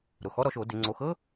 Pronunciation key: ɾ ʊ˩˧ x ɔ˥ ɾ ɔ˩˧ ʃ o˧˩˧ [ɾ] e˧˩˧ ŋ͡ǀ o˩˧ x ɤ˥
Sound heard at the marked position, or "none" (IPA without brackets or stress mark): d